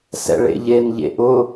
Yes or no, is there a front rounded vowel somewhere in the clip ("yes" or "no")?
no